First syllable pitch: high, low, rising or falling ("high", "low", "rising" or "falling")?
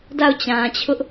falling